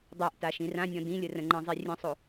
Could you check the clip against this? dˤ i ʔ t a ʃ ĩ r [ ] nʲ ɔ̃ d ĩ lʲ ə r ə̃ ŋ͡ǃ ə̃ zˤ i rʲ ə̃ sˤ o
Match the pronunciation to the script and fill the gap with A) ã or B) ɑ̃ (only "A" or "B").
A